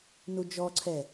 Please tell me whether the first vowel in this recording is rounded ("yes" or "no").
yes